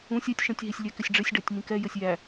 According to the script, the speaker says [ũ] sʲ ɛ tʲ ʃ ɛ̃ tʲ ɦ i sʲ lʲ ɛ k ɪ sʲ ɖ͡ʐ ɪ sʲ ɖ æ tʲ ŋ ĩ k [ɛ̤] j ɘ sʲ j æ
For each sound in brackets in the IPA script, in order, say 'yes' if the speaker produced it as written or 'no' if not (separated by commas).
yes, no